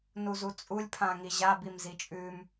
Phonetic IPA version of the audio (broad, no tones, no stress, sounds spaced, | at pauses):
n u z u t͡sʼ u lʲ pʰ ã ŋ i ʑ a b i m z i t͡ʃʼ ʉ m